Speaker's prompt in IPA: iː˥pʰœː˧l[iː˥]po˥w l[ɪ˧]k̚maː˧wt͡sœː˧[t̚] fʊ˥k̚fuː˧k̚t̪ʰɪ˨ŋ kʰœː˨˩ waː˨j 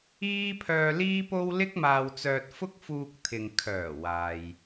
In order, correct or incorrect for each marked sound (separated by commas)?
correct, incorrect, correct